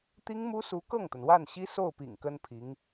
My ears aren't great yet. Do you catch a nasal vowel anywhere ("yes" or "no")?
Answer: no